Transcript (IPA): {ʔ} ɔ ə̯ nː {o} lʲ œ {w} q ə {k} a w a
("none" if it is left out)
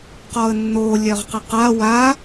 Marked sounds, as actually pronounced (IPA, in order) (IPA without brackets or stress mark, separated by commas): q, o, ʁ, q